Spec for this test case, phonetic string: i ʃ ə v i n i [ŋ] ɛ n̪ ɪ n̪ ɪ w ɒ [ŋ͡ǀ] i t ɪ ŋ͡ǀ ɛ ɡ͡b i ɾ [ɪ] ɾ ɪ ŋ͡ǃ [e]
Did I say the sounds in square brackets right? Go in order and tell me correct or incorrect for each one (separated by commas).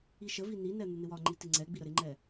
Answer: incorrect, incorrect, incorrect, incorrect